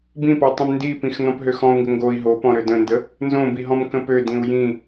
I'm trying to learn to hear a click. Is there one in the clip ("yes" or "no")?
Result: no